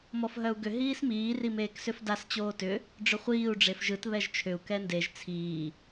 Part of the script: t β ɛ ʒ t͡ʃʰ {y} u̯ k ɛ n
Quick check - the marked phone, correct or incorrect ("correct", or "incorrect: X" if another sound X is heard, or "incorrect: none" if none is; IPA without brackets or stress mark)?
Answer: incorrect: ʏ